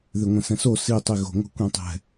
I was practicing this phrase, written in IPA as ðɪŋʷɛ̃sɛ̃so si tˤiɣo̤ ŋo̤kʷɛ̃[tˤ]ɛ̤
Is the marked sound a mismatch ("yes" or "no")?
no